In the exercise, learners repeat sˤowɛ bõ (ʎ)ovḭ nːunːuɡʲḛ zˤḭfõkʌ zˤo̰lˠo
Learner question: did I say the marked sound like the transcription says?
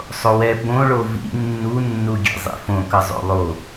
no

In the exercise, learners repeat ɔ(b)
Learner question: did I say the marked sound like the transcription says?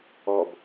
yes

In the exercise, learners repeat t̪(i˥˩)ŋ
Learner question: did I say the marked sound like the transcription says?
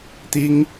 no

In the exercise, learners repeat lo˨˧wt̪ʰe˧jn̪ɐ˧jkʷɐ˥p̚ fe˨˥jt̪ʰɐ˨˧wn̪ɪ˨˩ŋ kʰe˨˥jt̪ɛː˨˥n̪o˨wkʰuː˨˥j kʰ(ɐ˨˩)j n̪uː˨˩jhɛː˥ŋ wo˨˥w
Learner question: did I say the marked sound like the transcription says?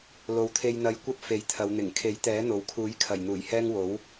yes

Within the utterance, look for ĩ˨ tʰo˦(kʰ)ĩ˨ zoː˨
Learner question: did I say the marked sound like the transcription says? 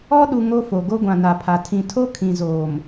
yes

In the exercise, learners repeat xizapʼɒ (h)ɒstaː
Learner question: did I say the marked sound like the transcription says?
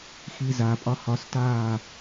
yes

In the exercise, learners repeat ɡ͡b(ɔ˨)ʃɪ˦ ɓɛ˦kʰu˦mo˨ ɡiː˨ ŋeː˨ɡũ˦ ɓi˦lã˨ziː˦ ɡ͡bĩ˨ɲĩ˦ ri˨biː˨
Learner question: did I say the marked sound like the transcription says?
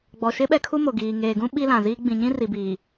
yes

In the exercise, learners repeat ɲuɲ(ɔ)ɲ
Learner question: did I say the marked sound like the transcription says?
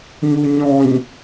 no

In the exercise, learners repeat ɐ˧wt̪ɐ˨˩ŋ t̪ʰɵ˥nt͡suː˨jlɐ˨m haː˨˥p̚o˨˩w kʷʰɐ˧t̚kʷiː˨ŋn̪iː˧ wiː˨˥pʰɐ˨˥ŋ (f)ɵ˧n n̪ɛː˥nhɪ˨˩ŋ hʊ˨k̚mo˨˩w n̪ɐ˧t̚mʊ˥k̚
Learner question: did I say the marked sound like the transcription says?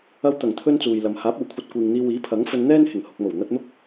yes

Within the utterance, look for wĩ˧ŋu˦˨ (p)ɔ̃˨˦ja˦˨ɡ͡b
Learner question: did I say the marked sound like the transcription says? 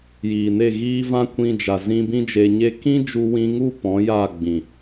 yes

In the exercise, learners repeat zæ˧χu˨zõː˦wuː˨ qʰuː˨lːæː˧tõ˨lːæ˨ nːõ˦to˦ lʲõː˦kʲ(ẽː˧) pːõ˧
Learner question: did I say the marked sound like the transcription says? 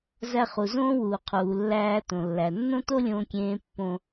no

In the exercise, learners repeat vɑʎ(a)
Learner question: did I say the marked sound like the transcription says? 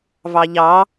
no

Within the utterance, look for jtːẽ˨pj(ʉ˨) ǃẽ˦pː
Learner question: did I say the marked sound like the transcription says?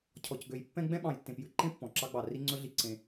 no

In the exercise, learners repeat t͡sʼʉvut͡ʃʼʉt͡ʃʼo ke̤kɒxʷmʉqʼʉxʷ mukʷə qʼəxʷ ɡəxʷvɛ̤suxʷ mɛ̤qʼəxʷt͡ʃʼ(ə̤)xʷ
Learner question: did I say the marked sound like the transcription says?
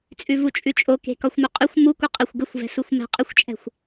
no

